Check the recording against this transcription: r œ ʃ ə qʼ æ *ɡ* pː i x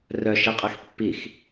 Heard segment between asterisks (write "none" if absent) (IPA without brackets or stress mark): x